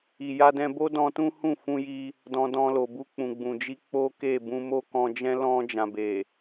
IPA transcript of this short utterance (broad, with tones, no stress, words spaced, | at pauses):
i˨ ja˧dɛ̃˧bo˦dɔ̃˧ tũ˦hũ˦˨fũ˧ji˧ | dɔ̃˧ dɔ̃˧lo˨ bu˧k͡pũ˨ ɡ͡bũ˨d͡ʒi˧ k͡po˦ke˦˨bũ˧ mo˦kɔ̃˧d͡ʒɛ̃˦ lɔ̃˧ d͡ʒã˨be˨